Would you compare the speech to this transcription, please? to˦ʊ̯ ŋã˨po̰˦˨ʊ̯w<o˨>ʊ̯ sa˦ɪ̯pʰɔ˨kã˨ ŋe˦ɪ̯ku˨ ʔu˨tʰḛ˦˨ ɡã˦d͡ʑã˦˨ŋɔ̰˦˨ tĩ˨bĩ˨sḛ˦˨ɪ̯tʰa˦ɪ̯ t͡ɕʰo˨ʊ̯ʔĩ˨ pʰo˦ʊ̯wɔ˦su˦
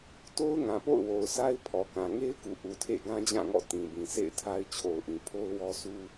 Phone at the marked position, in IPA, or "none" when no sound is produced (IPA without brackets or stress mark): o˨